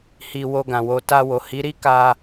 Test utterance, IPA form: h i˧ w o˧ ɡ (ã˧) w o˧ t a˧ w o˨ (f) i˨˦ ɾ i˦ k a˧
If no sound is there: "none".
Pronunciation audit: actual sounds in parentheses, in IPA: ã˨, h

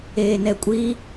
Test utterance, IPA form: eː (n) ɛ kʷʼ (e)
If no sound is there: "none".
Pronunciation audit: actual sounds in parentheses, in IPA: n, i

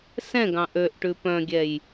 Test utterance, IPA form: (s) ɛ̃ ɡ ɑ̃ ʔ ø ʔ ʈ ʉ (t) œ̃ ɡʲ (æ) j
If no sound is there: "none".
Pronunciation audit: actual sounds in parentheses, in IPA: s, p, ɛ

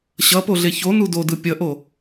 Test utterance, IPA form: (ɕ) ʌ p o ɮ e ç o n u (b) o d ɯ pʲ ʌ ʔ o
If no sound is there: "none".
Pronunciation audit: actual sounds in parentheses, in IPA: ɕ, d

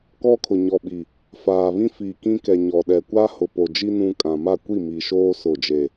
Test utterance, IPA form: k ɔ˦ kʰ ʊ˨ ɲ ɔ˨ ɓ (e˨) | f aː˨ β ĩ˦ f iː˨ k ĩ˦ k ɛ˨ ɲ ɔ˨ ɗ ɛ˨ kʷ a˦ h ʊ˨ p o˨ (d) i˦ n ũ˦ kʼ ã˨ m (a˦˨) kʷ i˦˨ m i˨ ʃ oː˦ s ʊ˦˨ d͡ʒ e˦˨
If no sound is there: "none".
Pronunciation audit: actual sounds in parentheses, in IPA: i˨, d͡ʒ, a˦˨

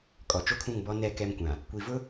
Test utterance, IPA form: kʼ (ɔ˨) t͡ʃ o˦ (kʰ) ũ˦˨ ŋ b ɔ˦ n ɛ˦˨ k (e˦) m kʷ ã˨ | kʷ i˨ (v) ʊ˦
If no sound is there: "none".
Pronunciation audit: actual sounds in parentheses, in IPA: ɔ˨, kʰ, ɛ˦, v

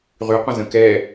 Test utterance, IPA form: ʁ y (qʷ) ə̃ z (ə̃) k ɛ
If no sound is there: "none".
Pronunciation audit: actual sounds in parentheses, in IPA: qʷ, ə̃

